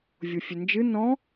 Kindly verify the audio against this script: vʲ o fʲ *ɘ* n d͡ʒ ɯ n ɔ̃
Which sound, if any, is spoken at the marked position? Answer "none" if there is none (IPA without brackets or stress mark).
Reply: ɘ